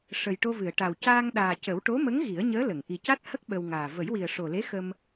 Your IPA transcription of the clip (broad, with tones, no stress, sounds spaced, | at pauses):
ʂ ə˨˩ j ʈ o˧ v ɨ˨˩˨ ə̯ ʈ a˨˩ w c aː˧ ŋ ɗ aː˨˩ c ə˨˩˦ w ʈ o˧˥ m ə˧˥ ŋ ɣ i˨˩˦ ə̯ ɲ əː˧˥ l ə˨˩˨ ŋ ʔ i˨˩ c a˦˥ t̚ h ə˦˥ k̚ ɓ ə˧ w ŋ aː˨˩ v ə˨˩˦ j w i˨˩ ə̯ ʂ o˨˩ l e˧˥ x ə˧ m